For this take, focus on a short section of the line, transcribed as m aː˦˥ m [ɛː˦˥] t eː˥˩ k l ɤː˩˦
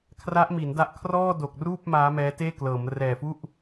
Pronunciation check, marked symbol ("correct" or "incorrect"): correct